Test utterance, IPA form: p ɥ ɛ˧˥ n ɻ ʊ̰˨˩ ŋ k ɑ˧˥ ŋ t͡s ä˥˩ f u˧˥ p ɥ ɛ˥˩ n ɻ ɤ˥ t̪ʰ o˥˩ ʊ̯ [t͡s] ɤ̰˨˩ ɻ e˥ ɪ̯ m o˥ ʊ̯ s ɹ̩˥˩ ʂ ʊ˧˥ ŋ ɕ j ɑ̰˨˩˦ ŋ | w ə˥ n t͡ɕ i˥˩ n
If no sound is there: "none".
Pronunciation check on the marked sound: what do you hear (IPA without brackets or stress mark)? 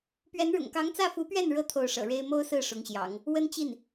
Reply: ʂ